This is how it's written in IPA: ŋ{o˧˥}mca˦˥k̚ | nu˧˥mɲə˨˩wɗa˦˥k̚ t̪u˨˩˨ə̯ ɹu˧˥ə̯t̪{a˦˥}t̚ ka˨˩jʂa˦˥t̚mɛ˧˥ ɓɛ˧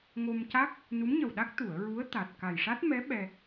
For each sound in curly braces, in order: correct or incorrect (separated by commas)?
incorrect, incorrect